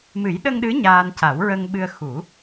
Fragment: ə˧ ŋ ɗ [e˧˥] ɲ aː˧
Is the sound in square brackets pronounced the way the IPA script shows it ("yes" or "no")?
no